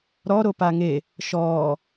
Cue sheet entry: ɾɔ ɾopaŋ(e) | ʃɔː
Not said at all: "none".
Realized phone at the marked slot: e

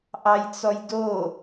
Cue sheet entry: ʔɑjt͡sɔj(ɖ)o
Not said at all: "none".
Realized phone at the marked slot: d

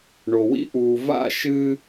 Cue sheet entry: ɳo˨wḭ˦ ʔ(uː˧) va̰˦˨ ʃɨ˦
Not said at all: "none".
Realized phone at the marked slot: uː˧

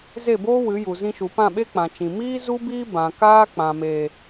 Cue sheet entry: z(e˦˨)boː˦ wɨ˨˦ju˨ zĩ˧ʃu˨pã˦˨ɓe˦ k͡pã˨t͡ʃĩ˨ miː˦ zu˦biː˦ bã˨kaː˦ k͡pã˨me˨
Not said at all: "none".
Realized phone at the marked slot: e˦˨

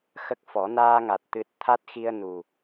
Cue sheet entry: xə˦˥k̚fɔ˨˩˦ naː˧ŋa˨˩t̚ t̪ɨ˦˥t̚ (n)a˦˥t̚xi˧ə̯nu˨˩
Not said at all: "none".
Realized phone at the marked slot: t̪ʰ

